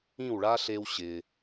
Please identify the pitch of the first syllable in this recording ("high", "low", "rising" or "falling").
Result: falling